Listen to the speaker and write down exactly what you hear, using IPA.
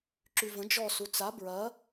ǁ y v ə̃ d͡ʒ ɔ s u t͡s a b ɹ ɐ

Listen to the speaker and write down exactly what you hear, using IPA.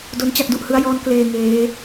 d o˦˥ n t͡ɕ a˥˩ k̚ d u˨˩ ʔ h ɯ˦˥ a̯ j ɔː˦˥ n k l eː˧ ŋ eː˦˥

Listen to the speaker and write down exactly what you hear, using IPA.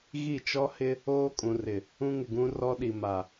ɣ i˦˨ t͡ʃ ɔ˦ h ɪ˦ | oː˦ kʼ ũ˨ r ɪ˨ | ũ˦ ŋ ɪ˨ ɡ ũ˦ r ɔ˦ ɗ i˨ m a˨

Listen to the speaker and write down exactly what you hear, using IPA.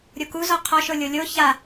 ɾʲ o k u z ɔ qʰ ɔ ʃ o lʲ o lʲ o ç a

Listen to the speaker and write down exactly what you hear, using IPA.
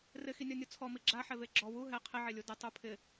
r ɪ x i nʲ ɔ nʲ u t͡sʰ ɔ m i ɡ͡ǁ a ħ ɛ v e ɡ͡ǁ ɔ w u ɦ ɛ qʰ ɪ ʕ e lʲ u d ɪ tˤ u pʰ ɪ

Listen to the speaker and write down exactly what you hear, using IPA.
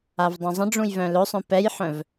a v dˤ ũ zˤ ə̃ ɖ͡ʐ ũ j v œ̃ l ɵ sˤ œ̃ p ɛ j ħ œ̃ v

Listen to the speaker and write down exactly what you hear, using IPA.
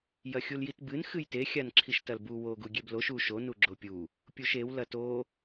j ɐ xʲ u l j i t b ɨ n x ɨ j t e xʲ a n ǁʰ i ʃ t ɐ l b u w o ɡ u ɡʲ e b l o ʃ u ʃ o n u ɡ͡ǁ o pʲ u | pʲ u ʃ e w l ɐ t o

